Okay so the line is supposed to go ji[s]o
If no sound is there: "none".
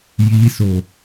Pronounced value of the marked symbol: s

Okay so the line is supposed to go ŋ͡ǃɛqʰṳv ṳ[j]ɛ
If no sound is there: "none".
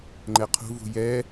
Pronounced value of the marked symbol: j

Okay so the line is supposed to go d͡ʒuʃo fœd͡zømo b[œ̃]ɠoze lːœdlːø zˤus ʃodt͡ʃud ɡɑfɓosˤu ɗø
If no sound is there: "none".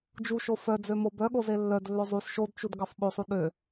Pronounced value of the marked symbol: œ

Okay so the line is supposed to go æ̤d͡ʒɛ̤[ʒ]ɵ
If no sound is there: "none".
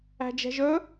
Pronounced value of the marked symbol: ʒ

